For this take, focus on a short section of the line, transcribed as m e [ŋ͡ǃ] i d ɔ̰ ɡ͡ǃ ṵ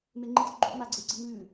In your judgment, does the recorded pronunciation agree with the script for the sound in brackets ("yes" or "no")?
yes